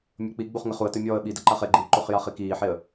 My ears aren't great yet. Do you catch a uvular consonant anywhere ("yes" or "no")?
yes